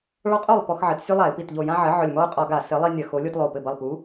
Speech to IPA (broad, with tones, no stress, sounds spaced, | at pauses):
ɭ ɔ˨˥ qʼ o˧˩ lˠ p ɔ˦ x ʕ ɘ˨˥ t sʲ u˦ lˠ a˧˩˧ ɪ̯ p i˧˩ t ʎ o˧˩ j ã˦ ʕ ɘ˨˥ ʕ ʊ˧˩ lʲ m ɔ˦ ʊ̯ qʼ ɒ˧˩˧ ɡ a˧˩˧ s ɘ˨˥ lˠ i˦ nʲ ɐ˧˩˧ x o˨˥ lʲ o˦ t lˠ o˧˩ p ɘ˧˩ b ɐ˧˩ lˠ p u˨˥